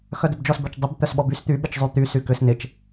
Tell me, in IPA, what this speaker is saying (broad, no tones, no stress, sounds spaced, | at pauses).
x œ d ʏ b d͡ʒ ɔ s b œ t͡ʃ dˤ ʏ b t̪ œ s ɓ ɔ b y s t̪ y ɓ ɪ t͡ʃ zˤ y t̪ y s y k ʏ s n ɪ t͡ʃ